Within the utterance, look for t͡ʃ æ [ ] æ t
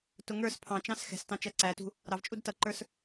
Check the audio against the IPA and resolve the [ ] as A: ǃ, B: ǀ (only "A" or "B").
B